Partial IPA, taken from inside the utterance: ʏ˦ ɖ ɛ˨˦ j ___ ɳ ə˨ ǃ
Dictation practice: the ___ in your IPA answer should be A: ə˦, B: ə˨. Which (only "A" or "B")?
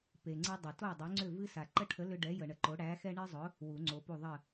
B